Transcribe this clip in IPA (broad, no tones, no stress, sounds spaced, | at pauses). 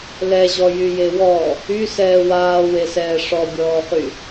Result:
l ɛ ʑ ɔ j y j e w ɔ | y s ɛː w aː w e s ɛː ʂ ɔ bʲ ɔː χ y